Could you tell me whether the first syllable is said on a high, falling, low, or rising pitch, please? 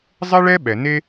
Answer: high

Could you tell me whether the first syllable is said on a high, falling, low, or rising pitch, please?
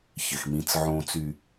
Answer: low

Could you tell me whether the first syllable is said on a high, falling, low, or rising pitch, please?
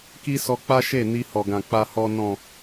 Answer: high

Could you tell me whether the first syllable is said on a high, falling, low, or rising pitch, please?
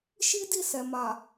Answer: high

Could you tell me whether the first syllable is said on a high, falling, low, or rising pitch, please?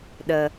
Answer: low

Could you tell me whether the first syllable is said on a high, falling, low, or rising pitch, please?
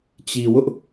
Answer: low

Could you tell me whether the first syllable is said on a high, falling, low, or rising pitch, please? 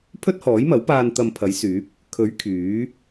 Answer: high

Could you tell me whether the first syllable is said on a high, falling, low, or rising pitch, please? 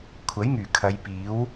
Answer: rising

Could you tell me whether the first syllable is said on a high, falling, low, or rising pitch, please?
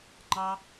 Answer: high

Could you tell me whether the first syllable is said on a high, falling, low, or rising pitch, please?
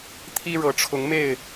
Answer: high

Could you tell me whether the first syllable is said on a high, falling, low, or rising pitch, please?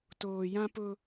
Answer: low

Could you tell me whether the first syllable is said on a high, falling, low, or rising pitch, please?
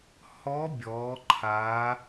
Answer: rising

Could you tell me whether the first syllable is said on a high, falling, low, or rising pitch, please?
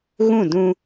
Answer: falling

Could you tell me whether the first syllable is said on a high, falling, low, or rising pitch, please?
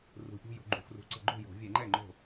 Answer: rising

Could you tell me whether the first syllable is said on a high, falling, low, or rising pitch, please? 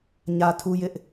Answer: low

